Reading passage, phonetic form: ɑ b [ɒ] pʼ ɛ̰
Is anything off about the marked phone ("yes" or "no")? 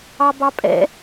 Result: yes